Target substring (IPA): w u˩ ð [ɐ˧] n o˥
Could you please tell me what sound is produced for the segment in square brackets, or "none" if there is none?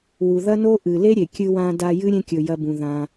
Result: ɐ˥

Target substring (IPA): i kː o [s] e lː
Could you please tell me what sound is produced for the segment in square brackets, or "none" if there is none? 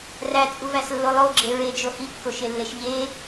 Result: ʃ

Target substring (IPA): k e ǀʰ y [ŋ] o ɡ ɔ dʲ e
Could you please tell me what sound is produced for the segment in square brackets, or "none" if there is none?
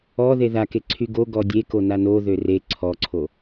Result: ɡ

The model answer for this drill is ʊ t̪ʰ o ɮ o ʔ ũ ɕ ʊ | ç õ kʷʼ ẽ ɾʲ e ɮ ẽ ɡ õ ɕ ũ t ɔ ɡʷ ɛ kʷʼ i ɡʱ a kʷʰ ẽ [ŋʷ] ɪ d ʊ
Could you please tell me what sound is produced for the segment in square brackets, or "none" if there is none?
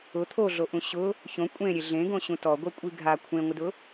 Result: ŋʷ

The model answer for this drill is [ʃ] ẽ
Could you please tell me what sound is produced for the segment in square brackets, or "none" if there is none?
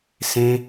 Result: s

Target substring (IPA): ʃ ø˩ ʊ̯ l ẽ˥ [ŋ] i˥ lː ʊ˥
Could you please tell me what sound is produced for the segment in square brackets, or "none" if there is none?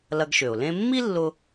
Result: mː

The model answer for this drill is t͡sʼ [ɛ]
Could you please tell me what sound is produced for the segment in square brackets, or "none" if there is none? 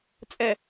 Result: ɛ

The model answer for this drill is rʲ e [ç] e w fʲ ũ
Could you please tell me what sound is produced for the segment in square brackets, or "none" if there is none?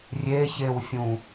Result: ç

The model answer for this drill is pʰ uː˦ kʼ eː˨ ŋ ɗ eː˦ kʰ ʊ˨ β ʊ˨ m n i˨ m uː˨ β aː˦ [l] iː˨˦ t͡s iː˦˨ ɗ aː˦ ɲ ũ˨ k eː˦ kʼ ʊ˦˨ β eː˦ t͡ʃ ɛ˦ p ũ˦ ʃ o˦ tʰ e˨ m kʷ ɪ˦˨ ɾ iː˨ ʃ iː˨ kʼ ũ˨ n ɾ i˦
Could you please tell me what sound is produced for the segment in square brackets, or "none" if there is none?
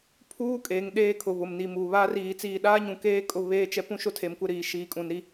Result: r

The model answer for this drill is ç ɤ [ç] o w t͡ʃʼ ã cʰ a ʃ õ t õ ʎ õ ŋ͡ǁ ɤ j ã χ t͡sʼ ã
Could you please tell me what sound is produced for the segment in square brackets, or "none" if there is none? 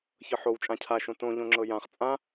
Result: ħ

